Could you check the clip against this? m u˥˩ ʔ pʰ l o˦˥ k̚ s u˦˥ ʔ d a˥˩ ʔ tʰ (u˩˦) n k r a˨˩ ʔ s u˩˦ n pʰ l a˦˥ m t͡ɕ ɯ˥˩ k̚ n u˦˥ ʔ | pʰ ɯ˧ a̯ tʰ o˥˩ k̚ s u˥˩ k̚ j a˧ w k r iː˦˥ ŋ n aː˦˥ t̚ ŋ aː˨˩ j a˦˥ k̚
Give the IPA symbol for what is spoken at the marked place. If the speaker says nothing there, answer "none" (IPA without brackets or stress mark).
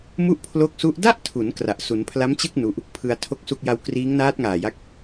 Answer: u˩˦